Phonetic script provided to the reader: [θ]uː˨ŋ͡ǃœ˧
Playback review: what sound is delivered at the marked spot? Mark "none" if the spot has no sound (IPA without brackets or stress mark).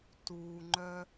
t